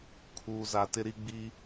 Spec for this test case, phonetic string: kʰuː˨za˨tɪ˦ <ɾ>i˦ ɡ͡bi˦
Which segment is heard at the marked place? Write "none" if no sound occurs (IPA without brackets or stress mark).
ɾ